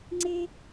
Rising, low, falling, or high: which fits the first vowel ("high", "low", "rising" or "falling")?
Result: high